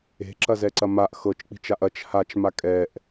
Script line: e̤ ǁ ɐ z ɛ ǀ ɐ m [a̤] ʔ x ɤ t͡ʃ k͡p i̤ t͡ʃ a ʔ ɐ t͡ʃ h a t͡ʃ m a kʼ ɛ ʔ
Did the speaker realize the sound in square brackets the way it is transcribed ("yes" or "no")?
no